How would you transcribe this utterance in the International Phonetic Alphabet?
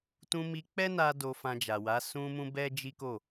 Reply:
t ũ˧ m i˧ k͡p ɛ˦ n a˧ d o˨ f ã˨ d͡ʒ a˨ w a˨˦ s ũ˧ m ũ˧ b ɛ˦ d͡ʒ i˦ k o˦˨

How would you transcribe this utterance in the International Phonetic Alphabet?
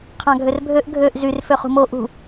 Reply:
qʰ ɑ̃ ɡʱ ø r bʱ ø ʔ ɡʱ ø ʔ z y r f ø χ ṳ m o ʔ ṳ

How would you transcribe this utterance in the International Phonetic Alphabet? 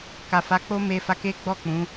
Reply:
k a˨ f a˨˦ k͡p o˦ m e˧ f a˧ k e˦ ɡ͡b ɔ˦˨ k͡p ũ˨˦

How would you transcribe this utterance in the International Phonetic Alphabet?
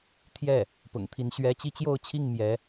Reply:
t̪ʰ j ɛ˥˩ | p ʊ̰˨˩ ŋ t̪ʰ i˧˥ n ɕ ɥ ɛ˥ t͡ɕ i˥ t͡ɕ j o˥˧ ʊ̯ t͡ɕʰ i˥˩ ŋ m j ɛ˧˥

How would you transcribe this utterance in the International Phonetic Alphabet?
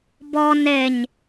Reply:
b ɔ n e ɲ

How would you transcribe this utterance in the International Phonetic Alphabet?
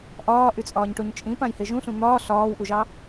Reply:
ʔ ɒː ʔ y t͡sʼ ɒː ɲ ʈ o ɲ t͡ʃʼ ĩ p ã j h e ʒ ũ ɬ ũ n̪ ɒː ɬ ɒː w ʔ u ʒ ɑ

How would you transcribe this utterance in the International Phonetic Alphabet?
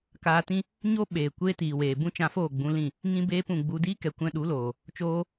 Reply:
k aː˧ t ĩ˦ | ɲ o˦ ɓ eː˨ kʷ eː˦ t iː˨ w eː˨ b ũ˦ t͡ʃ ã˧ f oː˦˨ ɡ͡b ũ˧ l ĩ˦˨ | ŋ ĩ˧ b eː˧ p ũ˨ ɡ͡b u˧ d iː˦ k ɛ˨ kʷ ɛ̃˧ ɗ u˨˦ l oː˨ | t͡ʃ oː˧

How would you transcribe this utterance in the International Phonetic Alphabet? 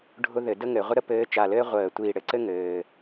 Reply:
ɖʱ ʊ˥ ð ɘ˧˩˧ d ə˥ ŋ ɘ˧˩˧ ʁʷ ə˥ ɾ ə˥ p ɘː˧˥ t͡ʃ a˧˩ l ɘː˥ ʁʷ əː˧˩˧ tʷ iː˧˩ ɽ ɘ˧˩ ǀ ɘ˥ ŋ ɘː˩

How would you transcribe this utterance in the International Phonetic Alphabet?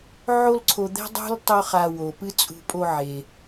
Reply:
ʕ o˥ l ǀʰ o˧ d̪ ɛ̤˥ dˤ ṳ˥ l tˤ o˥ χ a˧ w o˩ p ɨ˥ t͡sʼ ṳ˧ pʼ o˧ ʕ e˩

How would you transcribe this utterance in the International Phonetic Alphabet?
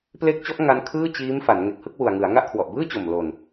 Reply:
p l e˦˥ k̚ t͡ɕ ɔ˦˥ ʔ ŋ a˦˥ n kʰ ɯː˥˩ t͡ɕ iː˦˥ m f a˩˦ n ŋ e˨˩ k̚ h ɯ˥˩ k̚ w u˨˩ a̯ ŋ ɯ˩˦ a̯ ŋ a˥˩ ʔ kʰ w ɔ˨˩ ʔ b ɯː˥˩ t͡ɕ o˨˩ m l o˨˩ n

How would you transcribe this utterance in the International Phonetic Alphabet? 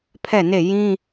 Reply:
pʰ ɛ˦˨ n e˦˨ j ĩ˦

